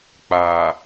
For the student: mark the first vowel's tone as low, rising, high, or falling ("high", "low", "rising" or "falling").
low